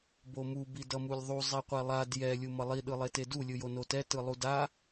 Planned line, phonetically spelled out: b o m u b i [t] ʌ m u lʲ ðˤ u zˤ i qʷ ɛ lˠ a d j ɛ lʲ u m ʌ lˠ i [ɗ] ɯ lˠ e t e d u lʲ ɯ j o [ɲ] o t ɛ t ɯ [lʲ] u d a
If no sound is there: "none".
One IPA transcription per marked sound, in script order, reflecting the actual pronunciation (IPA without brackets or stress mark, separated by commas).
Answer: d, ɗ, n, lˠ